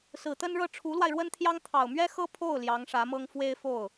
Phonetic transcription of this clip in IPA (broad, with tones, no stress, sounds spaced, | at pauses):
s ɹ̩˨˩ t̪ ə˥ n ɻ ɤ˥˩ ʈ͡ʂʰ u˧˥ l w a˧ ɪ̯ ɻ w ə˥ n t̪ʰ j ɑ˥ ŋ t̪ʰ ɑ˨˩ ʊ̯ m ɥ ɛ˥ x ɤ˥ pʰ o˥˩ ʊ̯ l j ɑ˧˥ ŋ ʂ ä˧˥ m ɤ˥ ŋ f w e˥ ɪ̯ f o˥˩ ʊ̯